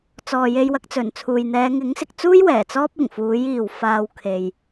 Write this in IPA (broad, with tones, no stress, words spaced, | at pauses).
t͡sɔː˨je˧j wɐ˨˥k̚t͡sɵ˨˩nt͡sʰuː˨j n̪ɛː˨˧ŋɪ˨˥ŋsɪ˨k̚t͡suː˥j wɛː˨˩t͡sɔː˥p̚ ɪ˨˩ŋfuː˨˥jiː˨w faː˧wkʰe˨j